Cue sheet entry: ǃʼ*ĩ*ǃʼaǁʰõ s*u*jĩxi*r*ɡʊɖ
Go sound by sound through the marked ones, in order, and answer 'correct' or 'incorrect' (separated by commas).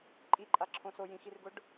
incorrect, incorrect, correct